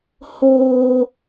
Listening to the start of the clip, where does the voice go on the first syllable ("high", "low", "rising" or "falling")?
high